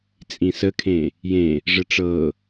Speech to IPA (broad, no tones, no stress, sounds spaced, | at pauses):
t͡sʼ ĩ s ə kʰ ẽ | j ẽ | ʐ ə ʈ͡ʂ ɤ